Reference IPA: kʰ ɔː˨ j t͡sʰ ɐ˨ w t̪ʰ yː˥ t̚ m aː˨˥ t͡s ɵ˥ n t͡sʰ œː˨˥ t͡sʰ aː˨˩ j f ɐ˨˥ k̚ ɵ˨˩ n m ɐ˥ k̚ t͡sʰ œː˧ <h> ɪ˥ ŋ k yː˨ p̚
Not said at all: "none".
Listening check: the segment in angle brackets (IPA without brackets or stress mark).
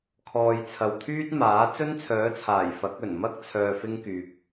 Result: f